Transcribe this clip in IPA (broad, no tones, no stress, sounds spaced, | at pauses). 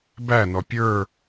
b æ n ɔ pʲ ə˞